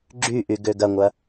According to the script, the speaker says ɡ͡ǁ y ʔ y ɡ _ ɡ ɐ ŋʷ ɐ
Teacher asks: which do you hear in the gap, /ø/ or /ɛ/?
ø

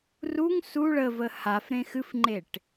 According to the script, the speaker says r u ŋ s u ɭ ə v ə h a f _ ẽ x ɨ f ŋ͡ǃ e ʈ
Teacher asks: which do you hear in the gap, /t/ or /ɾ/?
ɾ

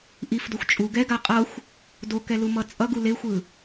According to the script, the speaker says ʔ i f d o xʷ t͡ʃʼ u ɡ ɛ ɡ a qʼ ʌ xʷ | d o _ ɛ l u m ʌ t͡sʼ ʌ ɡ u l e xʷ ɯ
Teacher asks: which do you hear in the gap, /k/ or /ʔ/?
k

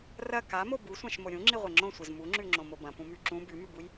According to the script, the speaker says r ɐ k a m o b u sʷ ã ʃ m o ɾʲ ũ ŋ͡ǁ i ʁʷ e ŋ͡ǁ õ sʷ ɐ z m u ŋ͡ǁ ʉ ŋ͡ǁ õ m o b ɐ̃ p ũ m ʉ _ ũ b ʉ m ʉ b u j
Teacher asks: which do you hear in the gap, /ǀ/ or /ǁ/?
ǁ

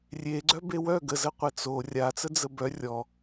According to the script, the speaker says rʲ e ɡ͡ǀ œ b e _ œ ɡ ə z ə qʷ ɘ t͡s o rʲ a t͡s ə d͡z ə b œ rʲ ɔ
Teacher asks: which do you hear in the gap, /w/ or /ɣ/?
w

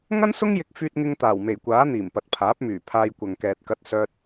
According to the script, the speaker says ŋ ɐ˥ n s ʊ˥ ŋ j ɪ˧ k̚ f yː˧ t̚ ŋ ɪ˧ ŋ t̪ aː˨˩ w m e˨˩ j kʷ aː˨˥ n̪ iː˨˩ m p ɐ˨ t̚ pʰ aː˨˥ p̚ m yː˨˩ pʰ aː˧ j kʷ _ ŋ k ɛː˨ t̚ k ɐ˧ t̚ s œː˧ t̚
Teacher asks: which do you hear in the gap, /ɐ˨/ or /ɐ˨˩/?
ɐ˨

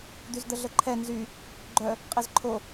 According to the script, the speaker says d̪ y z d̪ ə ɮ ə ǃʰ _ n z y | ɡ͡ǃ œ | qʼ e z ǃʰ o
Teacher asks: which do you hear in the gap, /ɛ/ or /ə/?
ɛ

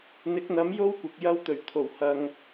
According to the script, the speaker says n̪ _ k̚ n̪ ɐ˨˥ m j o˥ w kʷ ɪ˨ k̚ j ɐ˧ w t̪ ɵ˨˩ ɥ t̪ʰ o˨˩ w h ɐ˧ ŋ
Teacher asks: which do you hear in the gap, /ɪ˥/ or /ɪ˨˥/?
ɪ˨˥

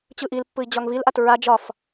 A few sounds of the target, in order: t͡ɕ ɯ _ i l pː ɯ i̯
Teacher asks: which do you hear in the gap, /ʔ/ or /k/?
ʔ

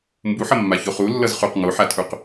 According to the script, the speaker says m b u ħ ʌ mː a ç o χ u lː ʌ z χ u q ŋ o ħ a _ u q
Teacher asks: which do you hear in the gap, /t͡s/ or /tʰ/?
tʰ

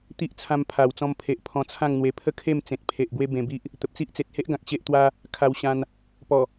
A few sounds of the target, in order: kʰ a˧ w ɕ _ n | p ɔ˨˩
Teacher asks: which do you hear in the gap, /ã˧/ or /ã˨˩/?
ã˧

